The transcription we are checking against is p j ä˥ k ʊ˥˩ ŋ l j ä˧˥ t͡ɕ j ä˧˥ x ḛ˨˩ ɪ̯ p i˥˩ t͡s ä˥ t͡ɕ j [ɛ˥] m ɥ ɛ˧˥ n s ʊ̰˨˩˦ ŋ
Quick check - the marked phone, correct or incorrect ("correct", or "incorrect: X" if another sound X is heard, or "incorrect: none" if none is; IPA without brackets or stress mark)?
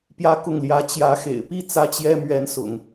correct